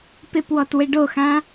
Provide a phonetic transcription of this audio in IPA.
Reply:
p ɪ p w ɔ t w ɪ ɖ o x ã

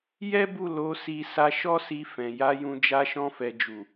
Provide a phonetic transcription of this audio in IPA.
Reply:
j ɛ˦ b u˦˨ l o˨˦ s i˧ s a˧ ʃ ɔ˦ s i˧ f ɛ̃˨ j a˨˦ j ũ˧ d͡ʒ a˧ ʃ ɔ̃˧ f ɛ˨ d͡ʒ u˨

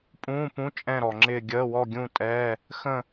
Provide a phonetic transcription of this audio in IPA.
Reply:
pʼ ũː˧˥˧ p ũ˧˥˧ t͡ʃʼ ɛ̃˥˧ ɾ ɔ˨ ŋ͡ǁ ɪː˥˧ ɡʲ əː˧˥˧ w ɔ˥˧ ɡʲ ũ˥˧ tʼ ɛ˧˥˧ | x ə̃˥˧

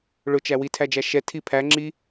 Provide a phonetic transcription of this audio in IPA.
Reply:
ɭ ʊ t͡ʃ æ w i tʰ æ d͡ʒ æ ʃ ɛ tʰ i pʰ æ ŋ͡ǁ i

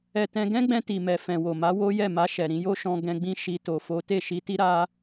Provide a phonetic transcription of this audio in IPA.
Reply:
ɛ˨ t ɛ̃˧ ɡ ɛ̃˦ ɡ͡b ɛ̃˧ t i˨ m ɛ˨ f ɛ̃˨ w o˨ m a˨˦ w o˦ j ɛ˦˨ m a˧ ʃ ɛ˨ ɾ ĩ˧ j o˦ ʃ ɔ̃˧ ɡ ɛ̃˧ ɡ͡b ĩ˦ ʃ i˧ t o˧ f o˦ t e˦˨ ʃ i˧ t i˦ ɾ a˦

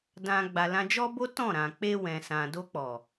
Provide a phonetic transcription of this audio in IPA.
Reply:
d ã˨ ɡ͡b a˨ l ã˧ d͡ʒ ɔ˦ b o˦ t ɔ̃˦˨ ɾ ã˨ k͡p e˧ w ɛ̃˨ s ã˨ d o˧ k͡p ɔ˨

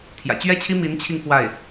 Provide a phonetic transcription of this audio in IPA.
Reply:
t̪ʰ j ä̰˨˩ t͡ɕ ɥ ɛ˥ t͡ɕʰ i˥ m i˧˥ n t͡ɕʰ i˧ ŋ k w a˥˩ ɪ̯

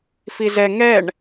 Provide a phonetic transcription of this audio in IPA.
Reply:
f i z ɛ ŋ ɛ ɳ

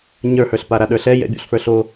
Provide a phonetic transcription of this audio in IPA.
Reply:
ɲ ə˞ h ə˞ ɬ p a ɾ a ɗ ə˞ ɬ ɛ j ɛ̰ bʲ o̰ ɬ f ə˞ ɬ o

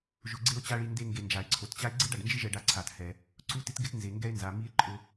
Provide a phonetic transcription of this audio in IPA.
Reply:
ʒ ʊ˧ ɡ͡ǀ e˦ o̯ t͡ɕ a˦ ɭ i˧ n d e˧ ŋ ɡ e˨ n d͡ʒ a˨ e̯ ǀʰ o˨ t t͡ɕ a˦ e̯ ɡ͡ǀ e˦ ɖ a˨ ɖ n d͡ʒ ɪ˦ ʒ ɛ˧ ɖ a˧ ǀʰ a˨ t h ɛ˨ | ǀ u˦ t ɪ˦ t ɡ ɪ˦ t n z e˨ ŋ ɡ ɛ˦ e̯ n z a˨ m i˦ e̯ ǃʼ ʊ˧

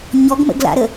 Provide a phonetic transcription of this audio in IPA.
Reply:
ɲ ɔ ɡ m ə̰ ɡ l a̰ ɾ ə

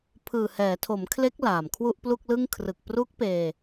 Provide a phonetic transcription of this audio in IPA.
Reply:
pʰ ɯː˨˩ h ɛː˩˦ tʰ o˩˦ m kʰ l e˦˥ k̚ l aː˨˩ m kʰ w u˥˩ ʔ p l u˥˩ k̚ l ɯ˥˩ ŋ kʰ r ɯ˨˩ k̚ p r uː˦˥ k̚ p eː˧

